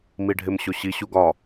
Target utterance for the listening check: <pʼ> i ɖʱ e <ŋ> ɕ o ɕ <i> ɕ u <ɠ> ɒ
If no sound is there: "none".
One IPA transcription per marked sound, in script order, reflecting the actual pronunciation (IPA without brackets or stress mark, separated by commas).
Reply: m, m, i, ɡ